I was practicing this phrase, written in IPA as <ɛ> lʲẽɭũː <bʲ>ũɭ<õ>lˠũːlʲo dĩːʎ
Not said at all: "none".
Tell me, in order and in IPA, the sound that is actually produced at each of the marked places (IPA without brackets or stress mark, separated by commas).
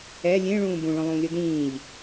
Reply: ɛ, b, õ